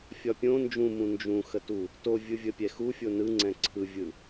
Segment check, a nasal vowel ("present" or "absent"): present